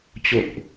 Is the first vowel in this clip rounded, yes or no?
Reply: yes